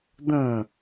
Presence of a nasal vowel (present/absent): present